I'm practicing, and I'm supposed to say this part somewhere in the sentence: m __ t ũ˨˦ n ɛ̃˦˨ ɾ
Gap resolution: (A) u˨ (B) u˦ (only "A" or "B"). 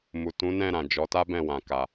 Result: A